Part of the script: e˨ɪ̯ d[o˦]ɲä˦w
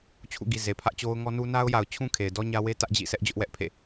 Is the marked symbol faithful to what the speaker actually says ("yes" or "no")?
no